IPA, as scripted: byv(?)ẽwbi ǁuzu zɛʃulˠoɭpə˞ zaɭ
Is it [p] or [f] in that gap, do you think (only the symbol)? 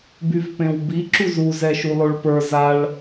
p